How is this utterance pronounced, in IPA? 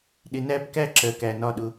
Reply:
ɗɪ˨næ˦bkæ˦ ǁɜ˨kæ˨nɒ˦˨ɗʊ˦

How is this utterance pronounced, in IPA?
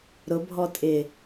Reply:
ɾʊbʱɔ tʼɪ

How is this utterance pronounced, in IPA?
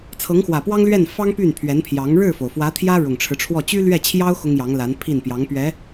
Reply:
t͡sʰɤ˧˥ŋxwä˨˩pwɑ˥ŋlɥɛ˥˩n fɑ˥ŋ py˥˩npʰɥɛ˧˥npʰjɑ˧˥ŋ ɻɻ̩˥˩fo˩ʊ̯ fwä˧˥t̪ʰjä˥ ɻʊ˨˩ŋʈ͡ʂʰɻ̩˦ʈ͡ʂʰwɔ˥˩ t͡ɕy˥lɥɛ˥˩t͡ɕʰjɑ˥ʊ̯ xʊ˥ŋjɑ˧˥ŋla˧˥n pʰi˥˩n pjɑ˧˥ŋpɥɛ˧˥

